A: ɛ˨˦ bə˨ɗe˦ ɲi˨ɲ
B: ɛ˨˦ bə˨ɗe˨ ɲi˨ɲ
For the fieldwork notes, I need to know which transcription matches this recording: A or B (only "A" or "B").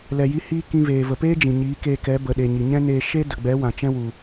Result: B